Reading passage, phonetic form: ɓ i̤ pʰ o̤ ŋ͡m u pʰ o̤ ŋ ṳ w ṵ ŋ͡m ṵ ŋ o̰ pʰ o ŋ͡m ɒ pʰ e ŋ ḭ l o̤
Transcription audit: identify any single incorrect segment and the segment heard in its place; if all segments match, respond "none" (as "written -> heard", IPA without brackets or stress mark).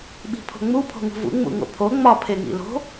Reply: w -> v